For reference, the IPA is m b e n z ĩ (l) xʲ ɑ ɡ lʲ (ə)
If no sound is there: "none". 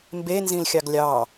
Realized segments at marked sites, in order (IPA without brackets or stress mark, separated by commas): l, ɑ